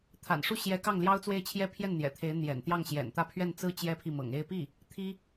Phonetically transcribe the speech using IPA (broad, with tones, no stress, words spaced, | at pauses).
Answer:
t̪ʰa̰˨˩nʂu˥˩ ɕjɛ˧˥ kɑ˥˩ŋljɑ˥ʊ̯t͡swe˥˩ɪ̯t͡ɕʰjɛ˥ pʰjɛ˥˩n n̪jɛ̰˨˩t̪ʰe˧˥ɪ̯ n̪jɛ̰˨˩nt̪jɑ˥˩ŋɕjɛ̰˨˩n t̪ä˥˧pʰɥɛ˥˩nt͡sɹ̩˥ t͡ɕjɛ˥pʰi˥˩ mɤ̰˨˩ŋe˥˧ɪ̯ pi˥˩ | t̪ʰi˥